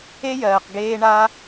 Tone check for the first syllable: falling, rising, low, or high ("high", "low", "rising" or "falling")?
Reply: high